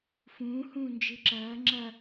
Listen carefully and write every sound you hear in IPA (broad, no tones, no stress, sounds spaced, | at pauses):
f ũː h ũː n d͡ʒ ɨ ǁ ɐː ŋ͡ǁ ɐ